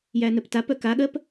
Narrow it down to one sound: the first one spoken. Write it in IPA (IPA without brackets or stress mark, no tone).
j